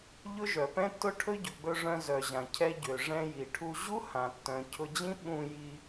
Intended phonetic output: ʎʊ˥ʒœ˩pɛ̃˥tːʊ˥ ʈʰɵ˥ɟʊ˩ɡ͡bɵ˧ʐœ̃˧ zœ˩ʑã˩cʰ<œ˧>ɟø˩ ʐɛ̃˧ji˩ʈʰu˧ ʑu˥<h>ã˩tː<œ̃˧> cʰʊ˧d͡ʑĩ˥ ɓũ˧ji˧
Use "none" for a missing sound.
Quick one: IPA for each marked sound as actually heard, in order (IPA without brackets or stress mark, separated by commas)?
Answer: ɛ˧, h, œ̃˩